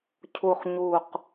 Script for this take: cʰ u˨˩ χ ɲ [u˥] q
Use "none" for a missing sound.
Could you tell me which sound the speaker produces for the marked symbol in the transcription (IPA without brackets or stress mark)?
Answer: u˨˩